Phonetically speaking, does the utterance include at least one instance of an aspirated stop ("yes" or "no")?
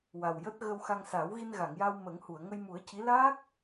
no